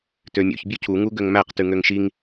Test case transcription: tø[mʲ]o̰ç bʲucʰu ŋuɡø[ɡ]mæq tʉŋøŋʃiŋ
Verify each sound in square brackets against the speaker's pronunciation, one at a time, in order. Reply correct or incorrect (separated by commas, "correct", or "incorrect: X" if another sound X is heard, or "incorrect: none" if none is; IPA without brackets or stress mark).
correct, incorrect: ŋ